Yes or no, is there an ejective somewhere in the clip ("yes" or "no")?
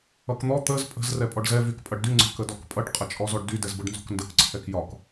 yes